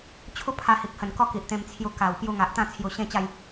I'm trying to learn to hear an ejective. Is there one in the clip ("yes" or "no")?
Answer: no